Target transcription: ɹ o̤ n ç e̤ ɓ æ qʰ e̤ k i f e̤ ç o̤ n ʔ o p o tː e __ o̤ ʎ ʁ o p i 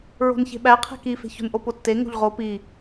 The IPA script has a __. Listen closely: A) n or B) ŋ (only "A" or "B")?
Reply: B